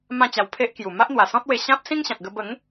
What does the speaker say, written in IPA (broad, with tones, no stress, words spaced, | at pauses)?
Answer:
mã˥˧t͡ɕa˧w pʰe˦ʔkju˨˩ ma˦ʔn̪wa˨˩sɔ̃˦t̚we˧ ɕã˦p̚sĩ˦ŋɕã˨t̚ɡə˧ bə˨˦ŋ